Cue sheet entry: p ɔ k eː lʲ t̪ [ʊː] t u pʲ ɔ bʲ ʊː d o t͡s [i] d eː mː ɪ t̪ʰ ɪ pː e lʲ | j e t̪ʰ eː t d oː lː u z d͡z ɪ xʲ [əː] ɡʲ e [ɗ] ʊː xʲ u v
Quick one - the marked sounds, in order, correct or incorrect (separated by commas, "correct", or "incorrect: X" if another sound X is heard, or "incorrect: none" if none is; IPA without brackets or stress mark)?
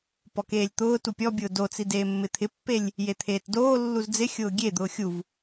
correct, correct, incorrect: ʊː, incorrect: d̪